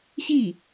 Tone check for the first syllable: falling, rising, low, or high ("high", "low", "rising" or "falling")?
falling